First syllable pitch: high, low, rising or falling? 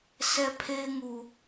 high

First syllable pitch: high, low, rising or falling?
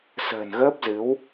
low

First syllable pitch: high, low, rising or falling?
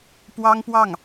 high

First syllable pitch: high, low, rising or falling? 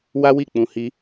high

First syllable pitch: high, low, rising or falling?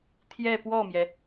falling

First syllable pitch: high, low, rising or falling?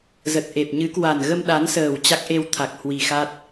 low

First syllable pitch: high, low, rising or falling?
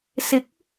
rising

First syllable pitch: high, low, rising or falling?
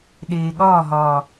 low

